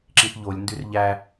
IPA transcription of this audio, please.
ǁĩθʎolʲndyr ʎæ

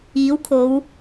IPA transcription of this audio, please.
iː˨˥wkʰo˨˧w

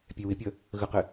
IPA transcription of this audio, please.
pʲɛwɪpʲʌ | ɣəqɪ

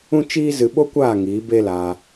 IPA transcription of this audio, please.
ũ˦t͡ʃiː˦ zɨ˧ɓo˦kʷaː˦˨ŋiː˨˦ be˦la˧

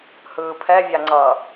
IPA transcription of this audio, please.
hɯːpʰɛ vʲaŋ͡ǀʌ

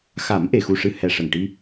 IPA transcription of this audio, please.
xa˨˩˦mʔe˨˩xu˨˩ʂɨ˨˩˦ hɛ˨˩ʂə˨˩ŋʈi˧

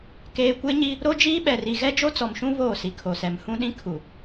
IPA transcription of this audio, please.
keː˨kʷe˦ɲi˦ | ɾo˦d͡ʒiː˦ɓɛ˨ri˨ ɣɛ˦d͡ʒo˦t͡sɔ˨mʃũ˦ βoː˦˨si˨kʰo˨sɛ˨m hũ˦ɗĩ˦kʰu˨

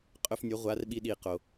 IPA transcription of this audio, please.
qʼɵ˧fnʲɵ˩˥ ʁʷa˩˥rɓi˧ ɗi˩ qo˩

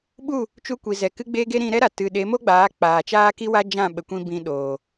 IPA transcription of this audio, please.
ɓu˦˨ | t͡ʃu˧kʷi˨ zɛ˨ kɨ˦ɡ͡be˦ɡe˦ ɾĩ˧ ɾɛ˦ɾa˨ tɨ˨ɗe˨˦mo˦ɡ͡baː˨˦ k͡paː˨t͡ʃaː˦ki˦wa˦ d͡ʒã˦˨ ɓə˨kʷĩ˧ bĩ˧ɗoː˨

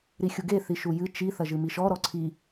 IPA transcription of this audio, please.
ɾixʲuɡe θiʃujɨ t͡ʃi θɐʒɨmiʃɔ ɾɔǀʰi

